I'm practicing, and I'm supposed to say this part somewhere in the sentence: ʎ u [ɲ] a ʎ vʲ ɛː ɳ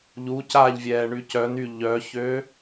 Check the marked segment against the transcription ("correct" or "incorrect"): incorrect